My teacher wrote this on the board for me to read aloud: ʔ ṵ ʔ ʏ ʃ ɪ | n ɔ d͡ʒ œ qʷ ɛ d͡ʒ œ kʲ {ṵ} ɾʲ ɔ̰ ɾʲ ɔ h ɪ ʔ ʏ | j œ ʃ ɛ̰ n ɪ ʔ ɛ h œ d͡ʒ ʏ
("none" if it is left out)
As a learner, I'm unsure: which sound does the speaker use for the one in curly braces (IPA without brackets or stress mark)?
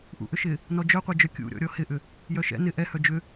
ṵ